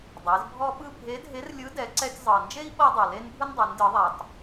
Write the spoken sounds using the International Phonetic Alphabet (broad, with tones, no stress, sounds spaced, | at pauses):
dˤ e˩˧ z bʱ ɔ˥ ɓ ɯ˥ bʱ e˧˥ dʱ e˧˥ r lʲ ɯ˧˥ d ɛ˩˧ ǀ ɛ˧ tʲ zˤ ɤ˩ n d͡ʒ e˥ i̯ ɓ ɤ˥ dˤ ɤ˩ l e˥ n bʱ ɯ˥ n dˤ ɛ˩˧ n d ɯ˩˧ ðˤ a˩ tˤ